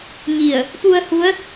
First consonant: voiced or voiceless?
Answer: voiced